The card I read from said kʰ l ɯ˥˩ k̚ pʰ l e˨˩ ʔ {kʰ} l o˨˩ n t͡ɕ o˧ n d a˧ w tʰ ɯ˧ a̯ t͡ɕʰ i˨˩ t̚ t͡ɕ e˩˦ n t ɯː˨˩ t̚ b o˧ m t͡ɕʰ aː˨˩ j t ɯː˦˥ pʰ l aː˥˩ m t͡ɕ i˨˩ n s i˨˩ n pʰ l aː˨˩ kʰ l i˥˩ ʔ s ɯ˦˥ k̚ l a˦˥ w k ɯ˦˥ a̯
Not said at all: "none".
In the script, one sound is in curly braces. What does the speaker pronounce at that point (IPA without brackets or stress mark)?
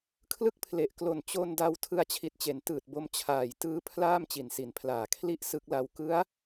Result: k